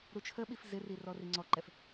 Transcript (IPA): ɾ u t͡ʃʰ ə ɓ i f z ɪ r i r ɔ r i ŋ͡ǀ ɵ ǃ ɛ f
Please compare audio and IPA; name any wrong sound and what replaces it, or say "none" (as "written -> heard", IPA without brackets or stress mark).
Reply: ɵ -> ɔ